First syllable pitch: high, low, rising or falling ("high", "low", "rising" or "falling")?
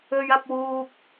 low